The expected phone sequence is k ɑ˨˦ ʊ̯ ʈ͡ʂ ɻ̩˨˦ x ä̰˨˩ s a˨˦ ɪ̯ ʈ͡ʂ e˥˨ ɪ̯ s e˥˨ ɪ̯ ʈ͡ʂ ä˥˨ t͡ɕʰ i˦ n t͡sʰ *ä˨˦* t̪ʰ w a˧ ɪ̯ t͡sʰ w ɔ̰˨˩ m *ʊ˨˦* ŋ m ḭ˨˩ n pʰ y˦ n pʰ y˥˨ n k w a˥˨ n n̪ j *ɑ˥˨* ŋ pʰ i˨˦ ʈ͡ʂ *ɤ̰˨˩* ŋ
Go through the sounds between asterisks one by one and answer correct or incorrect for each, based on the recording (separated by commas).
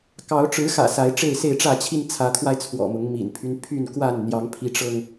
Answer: correct, correct, incorrect, incorrect